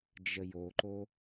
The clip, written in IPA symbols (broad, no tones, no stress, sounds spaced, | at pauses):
d͡ʒ ə j o ǃ o